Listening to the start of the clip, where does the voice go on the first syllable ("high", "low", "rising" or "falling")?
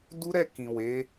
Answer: high